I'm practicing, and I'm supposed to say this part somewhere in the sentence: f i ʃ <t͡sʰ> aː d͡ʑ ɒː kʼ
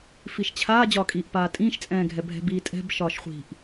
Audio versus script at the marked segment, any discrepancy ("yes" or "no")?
yes